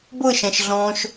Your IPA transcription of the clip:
b ɤ ʃ ã ʃ ɮ ɔ̃ː ʃ

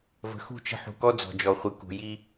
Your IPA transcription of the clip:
v ə̤˨ x ṳ˦˨ t͡ʃ ə̤˦ ħ ṳ˨ k ɔ˦ d͡z ɔ̤˨ d͡ʒ ɔ˨ χʷ ɨ˨ k ṳ˨ j i˦

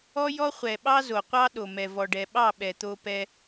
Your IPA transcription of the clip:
ɔ˦ j ɔ˦ χʷ ɛ˨ ɓ ɑ˦ z o˨ qʷ ɑ˦ ɗ o˨ m ɛ˨ v ɔ˨ ɖ ɛ˨ ɓ ɑ˦˨ ɓ ɛ˨ t̪ o˧ p ɛ˧

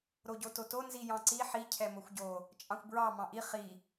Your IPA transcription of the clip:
ɾ o ɟ o t o t o n z i j ɑ̃ ǀ i ħ i cʰ ɛ m o xʷ ɟ o | t͡ʃʼ ɑ̃ xʷ b ɹ ɑ m ɑ̃ ʔ i χ i

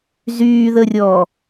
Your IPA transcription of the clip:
z yː ð ə rʲ ɔː

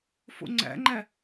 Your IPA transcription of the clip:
f o̰ ŋ͡ǀ æ̰ ŋ͡ǃ æ

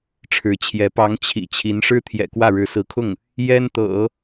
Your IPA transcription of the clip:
ʈ͡ʂʰ ɻ̩˧˥ t͡ɕʰ j ɛ˧˥ p ɑ˧˥ ŋ t͡ɕʰ ḭ˨˩ t͡ɕʰ i˧˥ n ʂ ɻ̩˥ t̪ʰ j ɛ̰˨˩ k w ä˥˩ ɻ ɻ̩˧˥ s ɹ̩˧˥ kʰ ʊ˥˩ ŋ | j ɛ˥ n t̪ ɤ̰˨˩˦

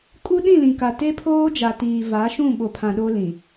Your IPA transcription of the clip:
kʼ u˦ ɗ ĩ˦˨ l ĩ˨ k a˨ t e˦ pʰ oː˦ d͡ʒ a˨ t iː˨ v a˨˦ ʃ ũ˦˨ ɓ o˨ pʰ ã˨ ɗ o˦ l ĩ˨

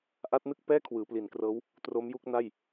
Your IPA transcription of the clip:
ʔ a˦˥ t̚ n ɯ˥˩ k̚ p ɛː˥˩ kʰ w ɯː˩˦ p l i˩˦ n k r ɤː˦˥ w | t r o˦˥ m j u˥˩ k̚ n a˥˩ j

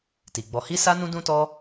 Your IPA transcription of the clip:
t i˨ ɡ͡b ɔ˧ h i˦ s a˦ n ũ˦ d ũ˦ t ɔ˦

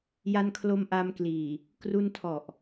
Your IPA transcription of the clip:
j a˧ n kʰ l o˧ m ʔ a˧ m k l iː˨˩ | k r u˧ n tʰ ɔ˨˩ ʔ

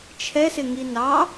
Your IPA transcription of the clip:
t͡ʃʰ ɛ s ɪ ŋ i n ɑ

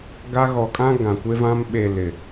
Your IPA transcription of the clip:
ɡ a˦ ɣ ɔ˨ kʼ ã˦ ɡ ã˨ kʷ e˦ v ã˦ m ɓ e˨ l ɪ˨

